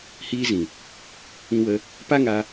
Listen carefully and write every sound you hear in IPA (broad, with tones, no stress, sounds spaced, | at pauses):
h iː˧ z ĩ˨ | ĩ˧ w ə˧ | p a˦ ŋ a˧